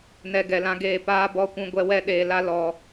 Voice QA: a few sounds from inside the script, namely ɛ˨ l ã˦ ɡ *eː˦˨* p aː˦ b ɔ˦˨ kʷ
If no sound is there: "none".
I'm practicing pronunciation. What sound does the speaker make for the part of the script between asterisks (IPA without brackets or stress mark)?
eː˦˨